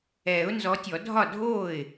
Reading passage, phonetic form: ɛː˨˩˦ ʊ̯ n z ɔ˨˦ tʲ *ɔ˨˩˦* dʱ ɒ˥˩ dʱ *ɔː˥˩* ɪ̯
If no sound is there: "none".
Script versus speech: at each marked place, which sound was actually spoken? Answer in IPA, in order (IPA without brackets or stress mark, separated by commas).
ɔ˨˩˦, oː˥˩